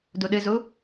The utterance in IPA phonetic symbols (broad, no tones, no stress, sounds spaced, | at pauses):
d u ɗ ɨ z u